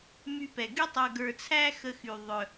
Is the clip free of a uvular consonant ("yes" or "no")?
yes